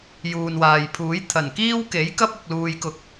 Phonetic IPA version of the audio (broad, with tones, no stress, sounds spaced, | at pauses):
j uː˨ n w aː˨ j pʰ uː˨˥ j t̪ʰ ɐ˨˩ n k iː˥ w k e˨˥ j k ɐ˥ p̚ ʊ˨ k̚ l uː˨ j k ʊ˨˥ k̚